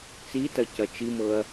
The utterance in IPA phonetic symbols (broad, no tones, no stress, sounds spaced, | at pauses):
t͡s i t ɐ c ɐ t͡ʃ i m ɤ ɐ̯